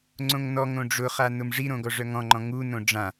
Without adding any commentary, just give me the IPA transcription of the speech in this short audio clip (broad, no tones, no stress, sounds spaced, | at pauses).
ŋ͡ǀ õ ŋ n ɔ ŋ õ ɖ͡ʐ ʊ χ a n ʊ m ʐ i ɾ õ ɡ ɔ ʐ œ ŋ ɔ̃ ŋ͡ǃ ɔ̃ ŋ u n õ ɖ͡ʐ ã